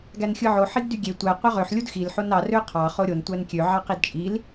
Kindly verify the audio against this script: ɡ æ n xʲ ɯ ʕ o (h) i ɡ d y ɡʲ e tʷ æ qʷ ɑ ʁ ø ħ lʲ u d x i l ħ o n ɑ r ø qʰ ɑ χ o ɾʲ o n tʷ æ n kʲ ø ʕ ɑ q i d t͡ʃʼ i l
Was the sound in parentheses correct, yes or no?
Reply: no